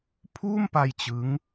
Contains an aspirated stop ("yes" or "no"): yes